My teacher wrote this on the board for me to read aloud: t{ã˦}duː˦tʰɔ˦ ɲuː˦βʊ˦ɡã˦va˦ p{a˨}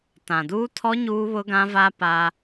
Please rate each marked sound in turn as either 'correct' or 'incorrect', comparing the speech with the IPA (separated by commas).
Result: incorrect, incorrect